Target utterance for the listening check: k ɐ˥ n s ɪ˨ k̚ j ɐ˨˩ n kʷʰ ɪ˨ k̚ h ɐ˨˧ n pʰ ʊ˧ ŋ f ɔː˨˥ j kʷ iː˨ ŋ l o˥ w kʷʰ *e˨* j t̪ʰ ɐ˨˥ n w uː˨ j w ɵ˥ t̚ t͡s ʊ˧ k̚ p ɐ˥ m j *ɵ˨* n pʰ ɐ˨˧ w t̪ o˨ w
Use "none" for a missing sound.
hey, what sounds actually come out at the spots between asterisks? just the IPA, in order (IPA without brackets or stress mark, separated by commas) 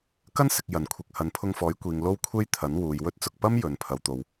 e˥, ɵ˨